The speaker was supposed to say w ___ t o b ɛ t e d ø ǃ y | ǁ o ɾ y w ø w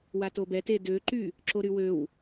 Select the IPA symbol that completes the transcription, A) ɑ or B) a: B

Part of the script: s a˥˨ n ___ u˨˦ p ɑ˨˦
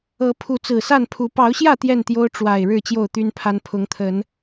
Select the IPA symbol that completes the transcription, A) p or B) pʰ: B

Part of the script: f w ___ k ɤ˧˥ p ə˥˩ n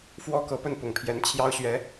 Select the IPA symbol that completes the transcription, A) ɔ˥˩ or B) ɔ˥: B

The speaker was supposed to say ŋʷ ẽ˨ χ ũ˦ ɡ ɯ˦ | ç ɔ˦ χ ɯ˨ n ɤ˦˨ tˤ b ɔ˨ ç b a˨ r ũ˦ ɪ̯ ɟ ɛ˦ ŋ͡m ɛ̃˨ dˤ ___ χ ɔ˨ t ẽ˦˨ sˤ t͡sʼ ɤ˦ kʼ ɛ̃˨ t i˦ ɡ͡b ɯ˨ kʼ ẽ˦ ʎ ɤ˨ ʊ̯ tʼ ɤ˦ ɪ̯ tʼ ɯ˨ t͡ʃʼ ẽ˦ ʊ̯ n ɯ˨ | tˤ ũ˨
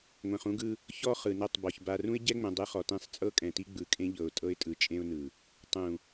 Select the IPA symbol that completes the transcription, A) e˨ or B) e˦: B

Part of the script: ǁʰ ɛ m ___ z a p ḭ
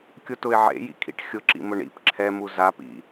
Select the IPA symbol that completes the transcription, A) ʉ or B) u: B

